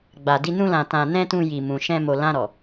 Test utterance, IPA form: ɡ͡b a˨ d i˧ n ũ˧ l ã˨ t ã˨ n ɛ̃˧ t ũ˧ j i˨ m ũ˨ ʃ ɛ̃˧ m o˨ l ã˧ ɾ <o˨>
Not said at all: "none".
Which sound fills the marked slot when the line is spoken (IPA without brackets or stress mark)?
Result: ɔ˨